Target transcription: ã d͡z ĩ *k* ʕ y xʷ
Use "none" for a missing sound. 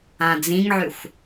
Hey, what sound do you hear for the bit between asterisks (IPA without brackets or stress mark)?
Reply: ŋ